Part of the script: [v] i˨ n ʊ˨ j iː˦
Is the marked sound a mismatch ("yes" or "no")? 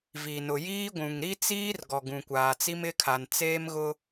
no